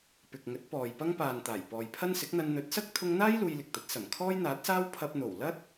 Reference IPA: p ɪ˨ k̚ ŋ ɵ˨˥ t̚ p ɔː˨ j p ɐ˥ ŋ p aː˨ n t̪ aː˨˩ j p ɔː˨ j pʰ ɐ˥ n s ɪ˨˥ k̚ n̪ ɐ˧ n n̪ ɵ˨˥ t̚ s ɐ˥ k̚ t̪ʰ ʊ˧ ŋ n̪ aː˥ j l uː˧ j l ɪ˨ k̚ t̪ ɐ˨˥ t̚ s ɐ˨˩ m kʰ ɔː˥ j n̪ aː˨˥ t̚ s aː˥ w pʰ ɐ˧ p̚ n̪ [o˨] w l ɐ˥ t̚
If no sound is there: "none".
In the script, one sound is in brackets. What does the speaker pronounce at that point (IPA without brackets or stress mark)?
o˨˩